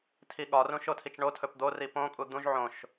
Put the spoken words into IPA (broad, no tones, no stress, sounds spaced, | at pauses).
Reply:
tʰ i ɠ ɒ r ũ ʃ o tʰ i t͡ʃ ɳ o tʰ ɵ p d̪ o r i p õ kʼ u d̪ ũ ʒ ʕ õ ʃ